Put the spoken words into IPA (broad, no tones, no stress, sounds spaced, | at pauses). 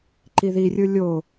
ǃ i ð i rʲ ɯ lʲ o